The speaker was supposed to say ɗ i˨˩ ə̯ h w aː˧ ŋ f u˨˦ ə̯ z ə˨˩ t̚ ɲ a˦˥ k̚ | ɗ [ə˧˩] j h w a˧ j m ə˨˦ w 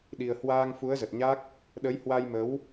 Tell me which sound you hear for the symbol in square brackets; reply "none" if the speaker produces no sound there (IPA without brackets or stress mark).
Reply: ə˨˦